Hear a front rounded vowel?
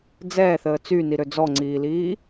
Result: yes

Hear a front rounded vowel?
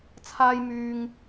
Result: yes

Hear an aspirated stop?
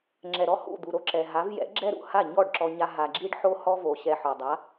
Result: no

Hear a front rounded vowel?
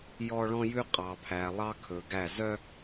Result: yes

